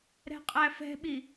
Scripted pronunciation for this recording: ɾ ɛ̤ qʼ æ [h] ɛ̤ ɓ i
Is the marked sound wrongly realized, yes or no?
yes